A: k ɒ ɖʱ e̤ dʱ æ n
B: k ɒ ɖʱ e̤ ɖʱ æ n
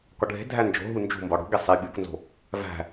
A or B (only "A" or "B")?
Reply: A